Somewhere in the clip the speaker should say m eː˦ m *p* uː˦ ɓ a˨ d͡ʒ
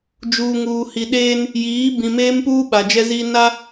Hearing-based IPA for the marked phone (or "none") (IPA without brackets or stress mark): p